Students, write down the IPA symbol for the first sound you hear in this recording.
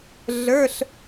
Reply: ɮ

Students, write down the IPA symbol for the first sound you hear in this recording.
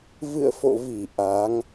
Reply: v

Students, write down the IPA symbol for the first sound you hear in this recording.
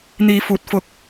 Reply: n̪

